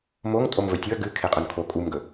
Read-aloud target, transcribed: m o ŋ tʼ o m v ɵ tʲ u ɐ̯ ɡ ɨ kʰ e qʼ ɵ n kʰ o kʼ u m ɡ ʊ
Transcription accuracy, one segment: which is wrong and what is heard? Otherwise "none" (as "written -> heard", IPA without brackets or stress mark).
ʊ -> ɵ